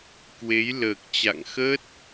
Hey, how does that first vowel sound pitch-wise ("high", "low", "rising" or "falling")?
rising